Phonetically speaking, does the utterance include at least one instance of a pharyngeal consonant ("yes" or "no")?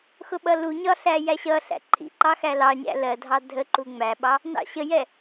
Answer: no